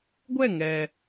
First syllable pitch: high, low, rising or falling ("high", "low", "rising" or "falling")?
falling